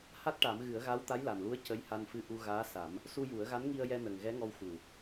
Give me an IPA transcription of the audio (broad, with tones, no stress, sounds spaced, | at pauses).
h a˦˥ t̚ ʈ a˨˩˦ m ɣ ɨ˨˩˦ ə̯ ɣ a˧˥ w t̪ a˧˥ j l a˨˩ n l u˧˥ ə̯ c ə˧˥ j h a˧ n f ɨ˧ ʔ u˧ ɣ aː˧˥ s a˨˩˦ m | s u˧ j u˨˩˦ ə̯ ɣ a˧˥ n ŋ i˧ ə̯ j ɛ˧ n ə˨˩ ŋ ɣ ɛ˧˥ ŋ ɔ˧ w x u˨˩